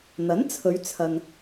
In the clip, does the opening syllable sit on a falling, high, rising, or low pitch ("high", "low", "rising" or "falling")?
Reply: rising